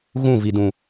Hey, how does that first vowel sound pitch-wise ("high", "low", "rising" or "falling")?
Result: falling